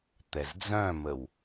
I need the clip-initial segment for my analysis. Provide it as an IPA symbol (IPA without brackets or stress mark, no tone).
t̪